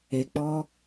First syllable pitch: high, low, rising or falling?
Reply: low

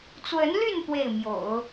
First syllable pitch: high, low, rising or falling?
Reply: rising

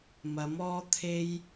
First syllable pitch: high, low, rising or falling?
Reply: rising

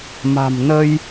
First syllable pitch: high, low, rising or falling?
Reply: low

